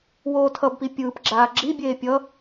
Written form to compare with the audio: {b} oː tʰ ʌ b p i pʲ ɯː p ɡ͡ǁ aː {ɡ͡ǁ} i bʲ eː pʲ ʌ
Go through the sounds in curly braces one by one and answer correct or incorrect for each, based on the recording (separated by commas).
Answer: incorrect, correct